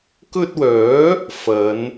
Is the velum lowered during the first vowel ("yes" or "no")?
no